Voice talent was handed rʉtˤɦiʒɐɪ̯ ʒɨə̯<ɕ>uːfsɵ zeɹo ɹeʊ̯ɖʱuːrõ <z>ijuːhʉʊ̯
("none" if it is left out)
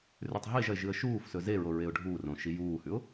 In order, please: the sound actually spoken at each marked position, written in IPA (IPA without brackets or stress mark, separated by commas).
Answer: ʃ, ʃ